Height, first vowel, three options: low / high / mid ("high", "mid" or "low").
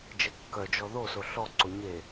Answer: mid